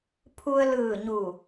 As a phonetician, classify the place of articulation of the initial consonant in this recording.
labial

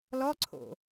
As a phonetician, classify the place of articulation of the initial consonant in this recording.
alveolar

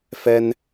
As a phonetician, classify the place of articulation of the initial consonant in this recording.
labial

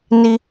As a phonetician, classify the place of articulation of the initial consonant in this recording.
alveolar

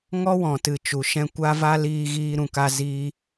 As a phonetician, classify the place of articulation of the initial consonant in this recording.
velar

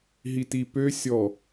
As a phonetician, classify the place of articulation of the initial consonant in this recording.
glottal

